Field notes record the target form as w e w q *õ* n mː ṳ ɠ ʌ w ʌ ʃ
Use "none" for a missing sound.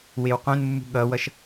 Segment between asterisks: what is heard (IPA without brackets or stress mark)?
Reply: õ